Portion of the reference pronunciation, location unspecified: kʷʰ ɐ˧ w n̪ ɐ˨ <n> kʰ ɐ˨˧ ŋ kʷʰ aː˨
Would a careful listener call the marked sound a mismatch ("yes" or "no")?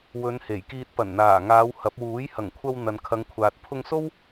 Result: no